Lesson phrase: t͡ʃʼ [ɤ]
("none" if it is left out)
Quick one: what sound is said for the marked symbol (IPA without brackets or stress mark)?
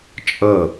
ɤ